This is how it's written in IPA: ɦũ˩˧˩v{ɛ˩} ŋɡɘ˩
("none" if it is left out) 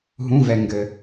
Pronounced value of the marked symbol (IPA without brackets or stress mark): ɛ˩